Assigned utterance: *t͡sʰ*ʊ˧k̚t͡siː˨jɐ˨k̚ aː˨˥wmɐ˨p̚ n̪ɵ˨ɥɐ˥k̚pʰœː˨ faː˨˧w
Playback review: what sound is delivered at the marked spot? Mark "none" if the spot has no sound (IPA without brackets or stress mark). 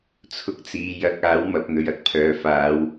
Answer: t͡sʰ